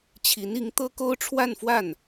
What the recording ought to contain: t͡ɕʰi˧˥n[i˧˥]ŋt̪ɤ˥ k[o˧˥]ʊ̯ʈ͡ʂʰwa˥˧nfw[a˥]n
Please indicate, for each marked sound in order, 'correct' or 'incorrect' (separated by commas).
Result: correct, incorrect, incorrect